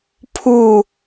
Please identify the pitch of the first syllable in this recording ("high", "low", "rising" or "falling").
falling